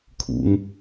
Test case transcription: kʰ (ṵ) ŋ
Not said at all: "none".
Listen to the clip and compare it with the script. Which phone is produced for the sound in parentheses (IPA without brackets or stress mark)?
ṵ